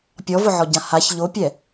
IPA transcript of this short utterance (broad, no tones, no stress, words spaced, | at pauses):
pʲɔvʊʕɔɟã haç ʎopʲɛ